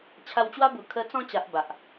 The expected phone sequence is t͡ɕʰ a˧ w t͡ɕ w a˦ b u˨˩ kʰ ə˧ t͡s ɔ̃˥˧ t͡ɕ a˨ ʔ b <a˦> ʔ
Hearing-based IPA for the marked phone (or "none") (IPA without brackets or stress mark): a˨